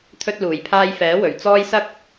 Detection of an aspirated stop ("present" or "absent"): present